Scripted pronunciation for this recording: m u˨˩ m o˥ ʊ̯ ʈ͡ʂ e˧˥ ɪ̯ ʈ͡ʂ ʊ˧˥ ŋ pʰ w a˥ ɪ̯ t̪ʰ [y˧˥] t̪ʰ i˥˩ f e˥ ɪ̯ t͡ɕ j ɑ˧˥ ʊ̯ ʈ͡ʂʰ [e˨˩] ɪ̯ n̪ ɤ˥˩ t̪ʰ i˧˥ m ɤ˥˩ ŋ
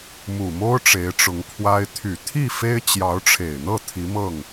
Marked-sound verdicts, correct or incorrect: incorrect, correct

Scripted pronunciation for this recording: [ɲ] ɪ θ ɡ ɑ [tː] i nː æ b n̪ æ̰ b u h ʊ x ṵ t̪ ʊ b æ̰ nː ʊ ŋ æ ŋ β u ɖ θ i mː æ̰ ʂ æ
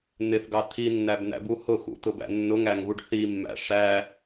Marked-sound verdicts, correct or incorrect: incorrect, incorrect

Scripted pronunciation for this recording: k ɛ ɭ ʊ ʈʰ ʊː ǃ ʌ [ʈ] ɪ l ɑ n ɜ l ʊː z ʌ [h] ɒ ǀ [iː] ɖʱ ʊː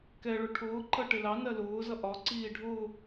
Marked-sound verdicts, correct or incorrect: correct, incorrect, correct

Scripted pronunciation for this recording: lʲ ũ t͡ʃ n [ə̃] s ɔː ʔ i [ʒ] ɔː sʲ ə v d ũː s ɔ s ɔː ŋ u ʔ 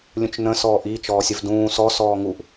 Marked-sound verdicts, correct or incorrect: correct, incorrect

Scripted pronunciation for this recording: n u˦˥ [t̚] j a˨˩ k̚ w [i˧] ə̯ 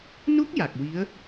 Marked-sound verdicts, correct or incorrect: incorrect, incorrect

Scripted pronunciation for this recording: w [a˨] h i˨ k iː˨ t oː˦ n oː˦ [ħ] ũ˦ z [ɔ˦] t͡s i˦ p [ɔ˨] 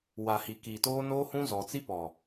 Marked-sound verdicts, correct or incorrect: correct, incorrect, incorrect, correct

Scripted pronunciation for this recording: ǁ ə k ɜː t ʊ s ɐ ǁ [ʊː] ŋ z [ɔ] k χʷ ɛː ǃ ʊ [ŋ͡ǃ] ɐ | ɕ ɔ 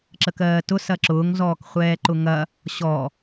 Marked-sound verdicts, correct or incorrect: correct, incorrect, incorrect

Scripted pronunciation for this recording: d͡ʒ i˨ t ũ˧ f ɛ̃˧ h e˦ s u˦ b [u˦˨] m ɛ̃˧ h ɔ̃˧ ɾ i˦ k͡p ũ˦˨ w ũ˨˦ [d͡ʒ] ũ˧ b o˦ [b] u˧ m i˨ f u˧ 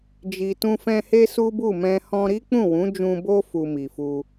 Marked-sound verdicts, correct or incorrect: correct, correct, incorrect

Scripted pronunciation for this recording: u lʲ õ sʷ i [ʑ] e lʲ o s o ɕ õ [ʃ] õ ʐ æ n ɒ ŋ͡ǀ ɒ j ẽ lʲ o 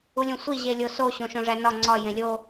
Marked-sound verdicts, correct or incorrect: correct, correct

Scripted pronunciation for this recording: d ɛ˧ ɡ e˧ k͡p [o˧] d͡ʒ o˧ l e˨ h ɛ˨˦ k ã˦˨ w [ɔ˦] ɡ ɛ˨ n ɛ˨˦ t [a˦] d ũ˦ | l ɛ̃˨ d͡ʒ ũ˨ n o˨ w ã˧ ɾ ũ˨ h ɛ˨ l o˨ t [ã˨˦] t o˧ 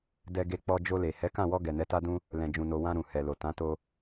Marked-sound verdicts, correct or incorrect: incorrect, incorrect, correct, correct

